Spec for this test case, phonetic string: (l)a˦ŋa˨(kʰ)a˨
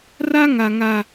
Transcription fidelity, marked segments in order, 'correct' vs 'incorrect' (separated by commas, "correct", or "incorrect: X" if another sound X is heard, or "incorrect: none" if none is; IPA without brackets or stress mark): incorrect: r, incorrect: ŋ